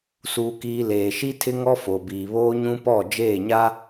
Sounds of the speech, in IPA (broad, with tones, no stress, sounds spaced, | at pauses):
s uː˨ k iː˨ l eː˨ ʃ i˦ tʰ ɪ˦ ŋ ɔ˦ f o˨ b iː˨ β oː˦ ɲ ũ˦ p ɔ˦˨ d͡ʒ eː˦˨ ɲ a˦